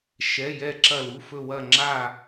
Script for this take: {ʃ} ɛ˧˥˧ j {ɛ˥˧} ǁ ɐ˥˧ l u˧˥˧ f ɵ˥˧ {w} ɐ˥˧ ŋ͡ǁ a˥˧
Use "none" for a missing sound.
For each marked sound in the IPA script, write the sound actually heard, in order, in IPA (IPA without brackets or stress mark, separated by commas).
ʃ, ɛ˥˧, w